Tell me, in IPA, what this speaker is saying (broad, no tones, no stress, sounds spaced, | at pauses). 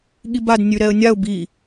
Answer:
ɠ i b a d nʲ ʉ ɾ ɛ ə̯ nʲ a ʊ̯ b i